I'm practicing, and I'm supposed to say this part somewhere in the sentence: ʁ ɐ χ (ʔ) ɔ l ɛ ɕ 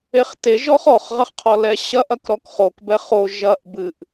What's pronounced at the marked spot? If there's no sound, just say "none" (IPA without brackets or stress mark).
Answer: qʰ